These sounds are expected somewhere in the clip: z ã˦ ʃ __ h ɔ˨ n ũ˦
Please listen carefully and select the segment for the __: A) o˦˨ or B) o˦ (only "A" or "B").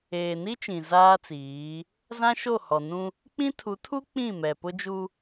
A